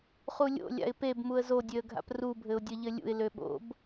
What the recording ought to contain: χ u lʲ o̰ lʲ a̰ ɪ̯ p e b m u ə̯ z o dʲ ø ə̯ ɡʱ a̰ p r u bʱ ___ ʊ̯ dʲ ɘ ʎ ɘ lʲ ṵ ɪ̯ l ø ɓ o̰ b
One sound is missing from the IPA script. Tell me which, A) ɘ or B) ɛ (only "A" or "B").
A